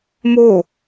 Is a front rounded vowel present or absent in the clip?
absent